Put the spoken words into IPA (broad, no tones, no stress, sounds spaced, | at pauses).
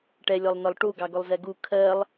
ʈ ɛ lʲ ɔ lˠ n ɒ lˠ ʈ u ɡ ɑ ɡ ʊ lˠ z ɛ ɡ u kʰ ɜ lˠ